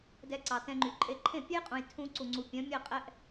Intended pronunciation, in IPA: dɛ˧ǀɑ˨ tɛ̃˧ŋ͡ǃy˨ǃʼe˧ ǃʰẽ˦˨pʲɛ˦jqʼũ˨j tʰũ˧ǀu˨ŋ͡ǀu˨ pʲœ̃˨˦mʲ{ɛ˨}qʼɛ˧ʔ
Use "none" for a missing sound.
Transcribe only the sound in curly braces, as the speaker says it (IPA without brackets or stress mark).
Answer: ɛ˦˨